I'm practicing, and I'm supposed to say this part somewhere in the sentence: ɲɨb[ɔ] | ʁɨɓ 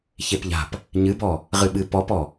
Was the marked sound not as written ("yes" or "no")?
no